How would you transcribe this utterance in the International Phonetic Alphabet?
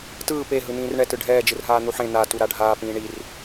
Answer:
t ɯː p e ɦ ɯ n ĩː r ɳ ɛ t ɯ ɖʱ ɛː d͡ʒ ɯ r ɦ aː n̪ u ħ ẽ n̪ a t u ɾ a ɖʱ aː p ĩː ɳ i r

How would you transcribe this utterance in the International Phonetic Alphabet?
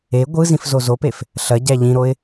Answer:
e ɡʷ ɯ z ĩ f z o z o p e f | ɬ ɐ ɟ æ ʎ ĩ ɾ o ɪ̯

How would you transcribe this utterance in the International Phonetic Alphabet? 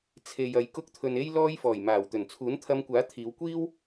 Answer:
t͡sʰ e˨ j ɐ˨ j k ʊ˧ k̚ t̪ʰ ɵ˨ n e˥ j l ɔː˧ j f ɔː˨˩ j m aː˨˩ w t̪ ɵ˨˩ n t͡sʰ uː˨˥ n t̪ʰ ɐ˧ m kʷ aː˨˥ t̪ʰ iː˨˧ w kʷ iː˥ w

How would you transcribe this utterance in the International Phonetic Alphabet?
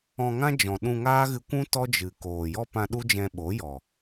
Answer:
ɔ̃˧ ŋ ã˦ d͡ʒ ɔ̃˨ ɗ ũ˧ ŋ aː˦ ɣ ɨ˧ kʷ ũ˦ t ɔ˦ d͡ʒ ɨ˨ k oː˨ j ɔ˦ p ã˧ ɗ u˦ d͡ʒ ɛ̃˧ ɓ o˨˦ j ɔ˨

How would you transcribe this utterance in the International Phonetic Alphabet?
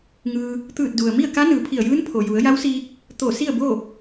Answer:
ŋ ɯː˧ | t̪ ɯː˧˩ t̚ d u˩ ə̯ m i˥˨ ə̯ k a˧˥ n ɯː˩˧ pʰ i˧˩ ə̯ j ɯː˧˥ n pʰ o˩ j u˩˧ ə̯ j a˧˥ w s iː˧ k̚ | t̪ o˧˩ s i˥˨ ə̯ b o˥˨

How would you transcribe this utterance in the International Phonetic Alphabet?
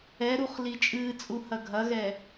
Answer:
ɛ ɾ u χ l i t͡ʃʼ ɨː t͡sʼ u h ɐ ɡʱ ɐ ɣ ɛ

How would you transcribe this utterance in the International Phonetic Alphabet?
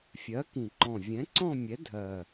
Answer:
fʲ ɜ˨˥ k ĩ˨˩ ǃ ɔ̃˨˩ vʲ ɛ̃˨˥ ǀ ɔ̃˥˧ mʲ ɛ˨˥ dʱ ɜ˨˩

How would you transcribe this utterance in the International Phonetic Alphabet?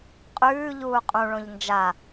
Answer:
qʼ ʉː ʎ uː qʼ ũ ɭ õ ʎ n d͡ʒ a

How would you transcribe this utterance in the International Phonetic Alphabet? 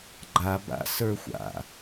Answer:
ɡ͡ǃ a b a̰ s ə˞ xʷ a̰

